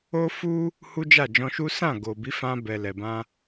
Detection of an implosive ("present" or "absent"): absent